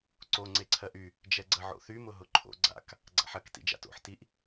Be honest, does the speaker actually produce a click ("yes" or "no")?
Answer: yes